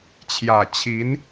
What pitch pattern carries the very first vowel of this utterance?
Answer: low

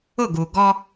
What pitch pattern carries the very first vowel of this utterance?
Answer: falling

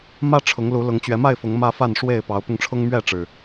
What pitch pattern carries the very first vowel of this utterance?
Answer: high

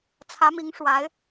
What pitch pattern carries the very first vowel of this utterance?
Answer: rising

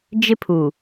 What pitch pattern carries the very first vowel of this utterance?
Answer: high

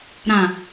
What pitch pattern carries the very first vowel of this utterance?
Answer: low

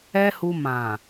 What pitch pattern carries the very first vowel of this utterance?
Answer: high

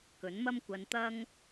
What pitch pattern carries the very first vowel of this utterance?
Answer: rising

